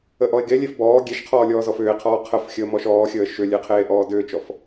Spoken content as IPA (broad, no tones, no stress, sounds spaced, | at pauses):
ə ʔ ɔ e̯ ɡ e lʲ e f b ɔː ɡʲ e ʃ qʰ ɔː lʲ ɔː z ɔ f ʏː e̯ qʰ ɔː qʰ ə f xʲ əː m ɔ ʃ ɔː xʲ əː ʃ ʏ lʲ e qʰ eː ʔ ɔː d ʏː t͡ʃ ɔ f